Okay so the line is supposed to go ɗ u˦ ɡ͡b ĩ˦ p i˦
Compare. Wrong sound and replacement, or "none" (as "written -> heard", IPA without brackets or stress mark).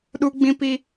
none